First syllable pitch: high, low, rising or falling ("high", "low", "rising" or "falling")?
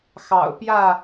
low